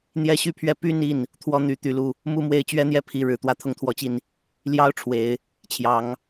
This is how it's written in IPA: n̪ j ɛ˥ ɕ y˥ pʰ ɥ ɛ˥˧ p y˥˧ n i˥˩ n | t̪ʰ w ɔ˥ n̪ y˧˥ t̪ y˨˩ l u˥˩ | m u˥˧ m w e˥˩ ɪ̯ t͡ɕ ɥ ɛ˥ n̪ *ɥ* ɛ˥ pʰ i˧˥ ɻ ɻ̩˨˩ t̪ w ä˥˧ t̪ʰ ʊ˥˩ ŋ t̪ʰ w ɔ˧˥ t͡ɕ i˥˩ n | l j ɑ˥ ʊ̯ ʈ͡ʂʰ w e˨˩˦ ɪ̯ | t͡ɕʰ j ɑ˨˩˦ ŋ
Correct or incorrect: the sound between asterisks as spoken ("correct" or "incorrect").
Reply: incorrect